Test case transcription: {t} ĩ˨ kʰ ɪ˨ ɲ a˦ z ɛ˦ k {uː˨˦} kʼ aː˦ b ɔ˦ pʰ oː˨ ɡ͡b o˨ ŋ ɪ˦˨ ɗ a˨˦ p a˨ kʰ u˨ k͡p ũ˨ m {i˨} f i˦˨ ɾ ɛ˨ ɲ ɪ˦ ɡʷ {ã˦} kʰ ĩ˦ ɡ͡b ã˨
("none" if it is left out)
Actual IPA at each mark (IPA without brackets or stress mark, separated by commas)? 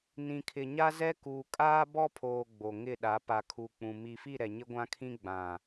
n, uː˨, i˨, ã˦